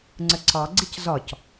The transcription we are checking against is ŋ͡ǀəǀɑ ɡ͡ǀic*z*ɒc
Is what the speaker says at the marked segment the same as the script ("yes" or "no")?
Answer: yes